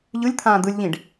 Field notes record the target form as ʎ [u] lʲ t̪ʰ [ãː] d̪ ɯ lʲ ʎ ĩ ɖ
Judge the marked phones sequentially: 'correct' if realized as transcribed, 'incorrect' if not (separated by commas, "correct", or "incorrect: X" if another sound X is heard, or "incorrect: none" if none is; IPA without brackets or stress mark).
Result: incorrect: ɯ, correct